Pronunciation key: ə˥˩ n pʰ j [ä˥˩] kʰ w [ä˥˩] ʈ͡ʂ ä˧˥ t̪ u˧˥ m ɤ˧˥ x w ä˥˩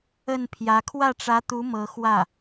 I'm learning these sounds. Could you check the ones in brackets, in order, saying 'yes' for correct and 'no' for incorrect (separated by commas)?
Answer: no, yes